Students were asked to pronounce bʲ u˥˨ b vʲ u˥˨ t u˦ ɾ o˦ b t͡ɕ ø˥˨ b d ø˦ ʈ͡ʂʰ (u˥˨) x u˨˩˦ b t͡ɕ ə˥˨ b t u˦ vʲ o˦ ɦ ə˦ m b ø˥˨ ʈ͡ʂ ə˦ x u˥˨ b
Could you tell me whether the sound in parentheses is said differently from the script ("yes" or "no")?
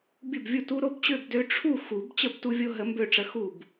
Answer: no